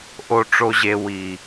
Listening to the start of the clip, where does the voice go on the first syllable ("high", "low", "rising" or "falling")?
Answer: high